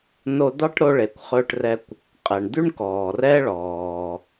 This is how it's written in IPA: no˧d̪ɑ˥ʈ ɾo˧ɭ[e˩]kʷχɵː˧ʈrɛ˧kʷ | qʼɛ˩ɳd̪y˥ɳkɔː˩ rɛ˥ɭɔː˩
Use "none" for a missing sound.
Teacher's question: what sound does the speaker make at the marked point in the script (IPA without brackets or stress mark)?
e˩